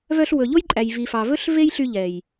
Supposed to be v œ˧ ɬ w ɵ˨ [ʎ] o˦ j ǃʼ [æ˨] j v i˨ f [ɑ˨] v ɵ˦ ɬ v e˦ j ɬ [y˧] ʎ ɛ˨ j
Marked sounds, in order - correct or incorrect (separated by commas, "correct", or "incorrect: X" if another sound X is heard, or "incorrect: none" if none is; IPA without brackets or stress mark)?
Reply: correct, correct, correct, correct